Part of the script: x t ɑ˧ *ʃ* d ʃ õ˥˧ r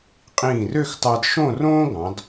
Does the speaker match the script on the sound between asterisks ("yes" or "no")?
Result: no